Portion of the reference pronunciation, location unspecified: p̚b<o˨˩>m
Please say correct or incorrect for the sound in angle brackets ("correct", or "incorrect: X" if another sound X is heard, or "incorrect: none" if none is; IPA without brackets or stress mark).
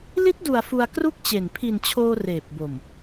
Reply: correct